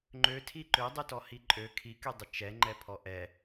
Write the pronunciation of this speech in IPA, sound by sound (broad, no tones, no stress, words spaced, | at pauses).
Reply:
ŋ͡ǃøtʰi ǃødˤytɔhi ǃʼø kʰikydˤə t͡ʃɛŋ͡ǃɛpʰɔ ʔɛ